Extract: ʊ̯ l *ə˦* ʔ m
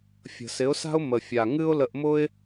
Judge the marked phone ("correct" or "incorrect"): incorrect